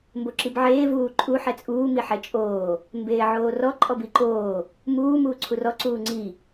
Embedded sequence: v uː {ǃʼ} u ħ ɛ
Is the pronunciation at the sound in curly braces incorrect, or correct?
correct